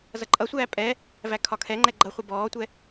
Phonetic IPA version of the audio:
z ʌ ǃʼ ʌ sʷ æː pʼ ɛ | v æ kʰ ɒ kʰ ɛ ŋ͡ǃ ɛ ɡ͡ǃ ʌ χʷ ʌ b ɔː tʷ ɛ

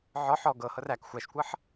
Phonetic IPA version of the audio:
ʕ ɔ ħ ɔ ɡ ɤ h ɤ r æ k xʷ æ ʃ kʷ ɤ ħ

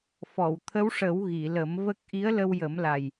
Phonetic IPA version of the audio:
f ɔ˨˩˨ w t̪ʰ ə˧˥ w ʂ ə˨˩˦ w ɣ i˨˩˨ l ə˨˩˦ m v ə˦˥ k̚ ʔ i˧˥ ə̯ l ə˧ w j ə˨˩˦ m l a˨˩ j

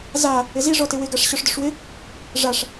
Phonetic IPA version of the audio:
z a | ɪ z i ʐ ɔ t ɪ w ɪ ɡ a ʂ ɕ ɔ ʂ d ʊ ʂ w ɪ | ʐ a ʂ

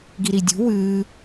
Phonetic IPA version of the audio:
ɡ i ɾ i dʲ ṳ w ɨː

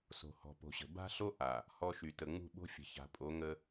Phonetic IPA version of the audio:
s o̤˨ h ɔ̤˨ p o̤˨ ɕ ə̤˨ b a̤˦ ɬ o˦ ʔ a˨ | h ɔ˦ ʃ y˨ t ə˨ ŋ͡m ṳ˦˨ ɓ o̤˦ fʲ ə̤˨ ç a̤˨ pʼ o˨˦ ŋ ə˦

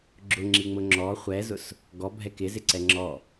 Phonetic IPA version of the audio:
ɡ͡ǁ ʊ ŋ͡ǁ i ŋ͡m ʊ ŋ͡ǁ ɔ χʷ ɛ z ʊ s | ɡ ɔ bʱ ɛ k ɪ z ɪ ǀ ɛ ŋ͡ǁ ɔ

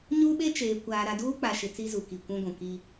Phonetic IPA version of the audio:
ɲ u˦ ɓ e˦ t͡ʃ eː˨ kʷ aː˨ ɾ a˨ d uː˦ k͡p a˨ ʃ ɪ˨ t͡s i˦ z u˨ k i˨ kʷ ũ˦ ɡʷ ũ˨ k i˦

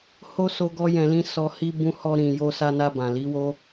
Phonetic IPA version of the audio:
h o˦ s o˦ ɡ ɔ˦ j ɛ̃˧ l ĩ˦ s ɔ˧ h i˦ b ũ˧ h ɔ˧ ɾ ĩ˨ j o˧ s a˧ n a˧ b ã˨ l i˨˦ w o˦

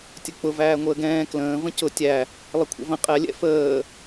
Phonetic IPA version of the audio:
tʲ ə k͡p ʊ v æː ŋʷ əː ɡ ɛ̃ː k l ə̃ː v ə̃ c ʊ tʲ æ | lˠ ə kʷʰ ə̰ v ə̃ qʼ ɛ lʲ ɛ̰ f əː

